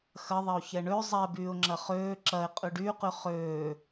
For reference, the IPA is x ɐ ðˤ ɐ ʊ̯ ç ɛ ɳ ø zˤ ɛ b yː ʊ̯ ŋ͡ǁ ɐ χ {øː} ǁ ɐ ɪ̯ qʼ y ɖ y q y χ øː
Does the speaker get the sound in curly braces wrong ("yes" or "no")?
no